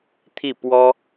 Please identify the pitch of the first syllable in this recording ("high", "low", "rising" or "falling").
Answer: falling